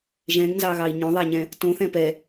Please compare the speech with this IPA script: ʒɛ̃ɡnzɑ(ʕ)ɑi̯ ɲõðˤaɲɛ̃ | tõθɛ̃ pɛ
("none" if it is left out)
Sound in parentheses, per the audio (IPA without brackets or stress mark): ɣ